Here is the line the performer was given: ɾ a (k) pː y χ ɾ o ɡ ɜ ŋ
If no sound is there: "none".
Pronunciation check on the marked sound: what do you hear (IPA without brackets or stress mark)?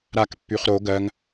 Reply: k